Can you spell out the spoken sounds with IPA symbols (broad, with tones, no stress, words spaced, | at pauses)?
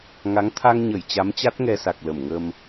ŋa˨˦ŋ t̪ʰa˧ŋɲə˧˩j t͡ɕa˨˦mt͡ɕa˦˥t̚ ŋɛ˧sa˨˩k̚ lə˧˩mŋə˧m